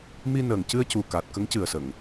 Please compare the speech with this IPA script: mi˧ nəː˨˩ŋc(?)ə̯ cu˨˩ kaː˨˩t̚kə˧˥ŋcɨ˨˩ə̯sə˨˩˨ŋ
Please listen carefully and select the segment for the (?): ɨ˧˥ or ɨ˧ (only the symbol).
ɨ˧